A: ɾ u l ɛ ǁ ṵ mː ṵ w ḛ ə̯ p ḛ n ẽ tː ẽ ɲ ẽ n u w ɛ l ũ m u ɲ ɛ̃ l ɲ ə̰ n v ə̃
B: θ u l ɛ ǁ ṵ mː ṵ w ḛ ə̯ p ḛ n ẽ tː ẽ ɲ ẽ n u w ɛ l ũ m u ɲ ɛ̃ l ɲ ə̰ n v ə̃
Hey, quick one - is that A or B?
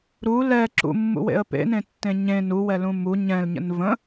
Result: A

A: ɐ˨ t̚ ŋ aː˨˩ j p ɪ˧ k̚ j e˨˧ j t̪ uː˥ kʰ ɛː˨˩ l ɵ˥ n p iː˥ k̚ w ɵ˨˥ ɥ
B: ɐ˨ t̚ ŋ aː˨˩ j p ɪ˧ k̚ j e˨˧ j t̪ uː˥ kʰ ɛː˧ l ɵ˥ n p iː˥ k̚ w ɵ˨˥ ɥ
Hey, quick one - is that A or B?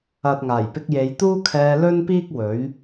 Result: B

